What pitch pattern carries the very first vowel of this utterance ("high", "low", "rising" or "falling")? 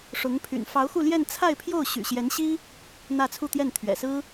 rising